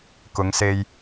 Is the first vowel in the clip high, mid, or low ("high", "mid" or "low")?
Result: high